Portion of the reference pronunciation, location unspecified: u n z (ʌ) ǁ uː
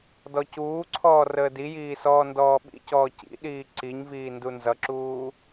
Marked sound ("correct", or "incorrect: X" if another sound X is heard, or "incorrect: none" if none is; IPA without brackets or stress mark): correct